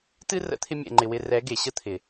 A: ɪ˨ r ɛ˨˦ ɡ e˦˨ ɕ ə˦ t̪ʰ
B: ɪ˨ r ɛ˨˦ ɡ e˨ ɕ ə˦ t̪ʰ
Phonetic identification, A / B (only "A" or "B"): B